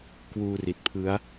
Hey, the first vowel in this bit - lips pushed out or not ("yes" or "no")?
yes